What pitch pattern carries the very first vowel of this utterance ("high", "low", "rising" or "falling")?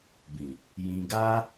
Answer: low